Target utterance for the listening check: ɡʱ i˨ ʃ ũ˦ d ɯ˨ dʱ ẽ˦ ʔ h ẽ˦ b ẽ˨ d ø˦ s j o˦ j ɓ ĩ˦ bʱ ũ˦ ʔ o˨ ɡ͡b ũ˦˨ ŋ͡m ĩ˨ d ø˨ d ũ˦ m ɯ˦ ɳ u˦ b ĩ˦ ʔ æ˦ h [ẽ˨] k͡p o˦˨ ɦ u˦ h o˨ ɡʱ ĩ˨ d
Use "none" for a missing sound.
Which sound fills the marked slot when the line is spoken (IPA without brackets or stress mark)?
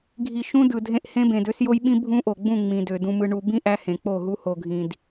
ẽ˨